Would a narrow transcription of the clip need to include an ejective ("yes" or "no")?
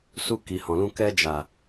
no